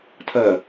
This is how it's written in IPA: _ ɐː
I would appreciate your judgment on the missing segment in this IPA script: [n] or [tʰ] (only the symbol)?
tʰ